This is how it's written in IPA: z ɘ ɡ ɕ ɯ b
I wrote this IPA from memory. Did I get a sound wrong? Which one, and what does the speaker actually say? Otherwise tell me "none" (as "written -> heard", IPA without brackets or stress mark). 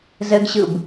none